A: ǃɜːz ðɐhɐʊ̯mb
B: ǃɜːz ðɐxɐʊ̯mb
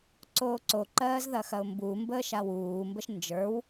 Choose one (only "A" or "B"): B